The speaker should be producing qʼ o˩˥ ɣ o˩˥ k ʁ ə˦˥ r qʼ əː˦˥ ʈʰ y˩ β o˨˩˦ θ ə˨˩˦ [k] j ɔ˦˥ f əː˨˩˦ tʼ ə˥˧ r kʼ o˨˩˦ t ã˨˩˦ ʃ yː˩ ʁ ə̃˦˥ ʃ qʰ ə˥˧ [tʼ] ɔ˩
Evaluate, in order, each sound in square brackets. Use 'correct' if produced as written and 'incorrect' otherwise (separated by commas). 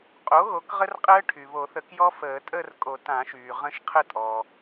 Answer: correct, correct